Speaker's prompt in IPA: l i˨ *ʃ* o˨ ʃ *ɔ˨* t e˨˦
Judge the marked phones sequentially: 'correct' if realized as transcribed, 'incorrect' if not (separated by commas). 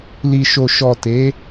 correct, correct